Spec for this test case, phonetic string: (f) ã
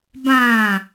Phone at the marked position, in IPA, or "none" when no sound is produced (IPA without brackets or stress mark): b